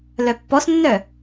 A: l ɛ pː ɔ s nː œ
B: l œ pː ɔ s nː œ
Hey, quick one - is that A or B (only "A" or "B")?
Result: B